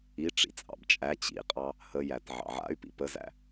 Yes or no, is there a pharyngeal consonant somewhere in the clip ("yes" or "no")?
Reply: yes